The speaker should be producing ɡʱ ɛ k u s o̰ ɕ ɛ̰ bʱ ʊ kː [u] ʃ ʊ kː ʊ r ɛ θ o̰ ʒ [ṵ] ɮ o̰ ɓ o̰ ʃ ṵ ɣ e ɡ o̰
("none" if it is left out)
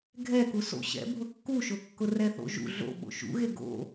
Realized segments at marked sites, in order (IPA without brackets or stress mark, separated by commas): u, ṵ